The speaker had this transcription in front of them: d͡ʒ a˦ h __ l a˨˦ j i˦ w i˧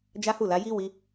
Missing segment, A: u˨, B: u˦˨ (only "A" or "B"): B